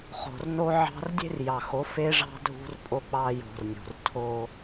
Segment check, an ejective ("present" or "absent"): present